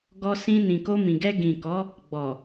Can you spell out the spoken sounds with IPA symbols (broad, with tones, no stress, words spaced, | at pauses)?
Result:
ɡɔ˧ sĩ˧nĩ˨ko˧ mĩ˨ɡɛ˧ ɡĩ˨kɔ˨˦ | ɡ͡bɔ˨